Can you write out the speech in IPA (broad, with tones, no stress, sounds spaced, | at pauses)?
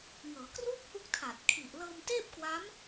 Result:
ŋ ɤː˩˦ k r uː˥˩ k̚ h u˦˥ k̚ tʰ a˨˩ t̚ kʰ i˨˩ ʔ l ɤː˧ m t eː˥˩ p̚ k w a˦˥ m